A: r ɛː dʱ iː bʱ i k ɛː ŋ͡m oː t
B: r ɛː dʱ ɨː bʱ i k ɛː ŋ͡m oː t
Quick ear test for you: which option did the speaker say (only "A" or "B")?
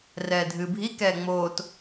B